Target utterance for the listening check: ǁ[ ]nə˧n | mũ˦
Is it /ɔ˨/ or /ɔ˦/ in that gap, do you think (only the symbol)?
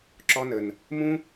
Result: ɔ˦